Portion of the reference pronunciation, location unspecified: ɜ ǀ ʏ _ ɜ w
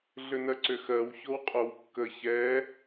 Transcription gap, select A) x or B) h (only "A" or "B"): A